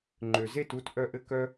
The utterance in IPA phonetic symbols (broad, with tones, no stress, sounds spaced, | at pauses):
ŋ͡ǃ ø˩ z e˥˩ t u˥˩ t ʔ œ˧ ʔ ɘ˧ k œ˧